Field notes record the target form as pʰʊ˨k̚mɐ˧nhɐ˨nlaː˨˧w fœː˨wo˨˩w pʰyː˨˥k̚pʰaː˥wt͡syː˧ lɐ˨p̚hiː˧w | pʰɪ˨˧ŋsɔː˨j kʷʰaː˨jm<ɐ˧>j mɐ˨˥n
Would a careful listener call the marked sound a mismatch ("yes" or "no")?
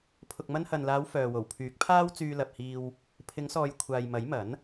yes